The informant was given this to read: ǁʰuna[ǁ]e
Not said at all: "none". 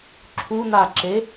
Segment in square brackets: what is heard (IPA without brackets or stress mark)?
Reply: ǁ